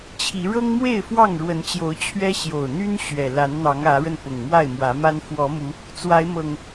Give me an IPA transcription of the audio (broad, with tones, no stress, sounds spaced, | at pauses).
t͡ɕʰ i˨˦ ɻ ɤ˦ ŋ m w e˥˨ ɪ̯ f w ɑ˥˨ ŋ ɻ w ə˨˦ n t͡ɕ j o˨˦ ʊ̯ t͡ɕʰ ɥ ɛ˦ ɕ j o˨˩ ʊ̯ n̪ y˦ n ɕ ɥ ɛ˨˩ l a˨˦ n n̪ ɑ˨˦ ŋ ä˨˦ ɻ ə˧ n p ʊ˨˩ ŋ m w a˥˨ ɪ̯ m w ä˨˦ m a˦ n f w ɔ˨˦ m u˨˦ | t͡s w a˨˦ ɪ̯ m ɤ˨˩ ŋ